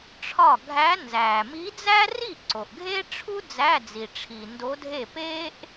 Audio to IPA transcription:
ʈ͡ʂʰ ɒ˥˩ ɡʱ æ˧˥ n z æː˩ m i˧˥ d͡z æ˥ r i˥˩ ǀ o˩ ʔ ɡʱ e˥ ʈ͡ʂʰ u˥ d͡z æ˧˥˧ d͡z i˩ ʈ͡ʂʰ i˩ n d o˧˥ dʱ e˥˩ p eː˥ ʔ

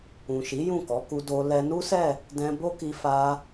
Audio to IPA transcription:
ũ˨ ʃ i˨˦ j ũ˦˨ k ɔ˨˦ k u˧ d o˧ l ɛ˧ n u˦ s ɛ˦˨ | d ɛ̃˧ b o˦ k i˧ f a˧

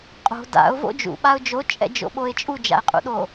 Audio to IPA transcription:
qʼ o̤ d a̰ ʊ̯ v o̰ d͡ʒ ṵ ɓ a ʊ̯ d͡ʒ o t͡ʃʼ ɛ̰ d͡ʒ o̰ ɓ o ɪ̯ t͡ʃʼ u d͡ʒ a̰ ɪ̯ qʼ ṵ ɗ o

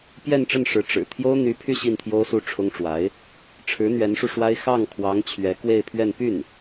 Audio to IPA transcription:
p j ɛ˥˧ n ʈ͡ʂ ə˥˩ n ʂ ɻ̩˧˥ ʈ͡ʂ ɻ̩˨˩ t̪ʰ j o˥ ʊ̯ n̪ y˧˥ pʰ y˥˧ ɕ i˥˩ n t̪ʰ j o˥ ʊ̯ s u˥˩ ʈ͡ʂʰ ʊ˥ ŋ ʈ͡ʂ w a˧˥ ɪ̯ | ʈ͡ʂʰ ɻ̩˧˥ n̪ ɥ ɛ˧˥ n ʂ u˧ ʂ w a˥ ɪ̯ x ɑ˥˩ ŋ kʰ w ɑ˧˥ ŋ t͡ɕʰ ɥ ɛ˧˥ k w e˥˧ ɪ̯ pʰ ɥ ɛ˥˧ n p y˥˩ n

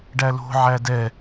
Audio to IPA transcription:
ɖ æ l o̤ ʕ æ d ɛ

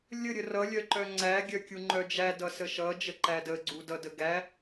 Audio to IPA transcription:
lʲ ə ɾʲ ə r ʌ lʲ œ ǃ œ ŋ͡ǀ æ ɡʲ œ kʲ u ŋ͡ǃ œ d͡ʒ æ d ʌ s ə ʃ ʌ d͡ʒ ə ǃ æ d ə ɡ͡ǀ u d ʌ d ə ɡ æ

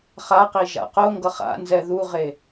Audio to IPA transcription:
χ a q i ʒ a̰ q o ŋ ɡ ʌ χ a̰ n z ɛ ð u ʁ e

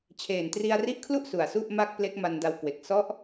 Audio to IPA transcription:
t͡ɕʰ eː˨˩ n t r i˧ a̯ r i˦˥ ʔ kʰ l u˥˩ ʔ s u˨˩ a̯ s u˥˩ ʔ m a˥˩ k̚ p l e˦˥ k̚ m a˧ n d a˧ w k w e˨˩ k̚ s ɔ˦˥ ʔ

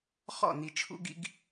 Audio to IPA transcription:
χ ɔ̰˦˨ n i˨ t͡ʃʰ ṵ˦ ɡ ḭ˦ ɡ

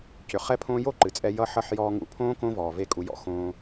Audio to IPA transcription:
c ʏ˨ χ ɛ˦ pʰ õː˦ j o˦ ǃ ɨ˨ t͡sʼ ɛ˧ j ʌ˦ ħ ʌ˦ ħ j ɔː˧ ŋ ṵ˧ pʰ õː˦ k õ˦ v ɔː˨ v e˦ kʼ u˧ j ɔ̰˦ x õː˧

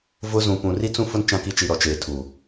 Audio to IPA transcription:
v ʊ˦ z ũ˨ p ũ˨ r i˦ t͡s ũ˦ f ʊ˦ n t͡ʃ ã˦ k i˦ t͡ʃ i˨ ɾ ɔ˨ t͡ʃ eː˨ tʰ u˨

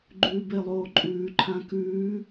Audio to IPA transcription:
ɡ͡ǃ ʉː b e lˠ oː ǃʼ ʉː ǃʰ ã k ʉː

